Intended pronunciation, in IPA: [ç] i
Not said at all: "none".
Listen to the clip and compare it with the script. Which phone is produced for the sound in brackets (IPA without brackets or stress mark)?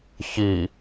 ç